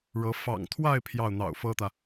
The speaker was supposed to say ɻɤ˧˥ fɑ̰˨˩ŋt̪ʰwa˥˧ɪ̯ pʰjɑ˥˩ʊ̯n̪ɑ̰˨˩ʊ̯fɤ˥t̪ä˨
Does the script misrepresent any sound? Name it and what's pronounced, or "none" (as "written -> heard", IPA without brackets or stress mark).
none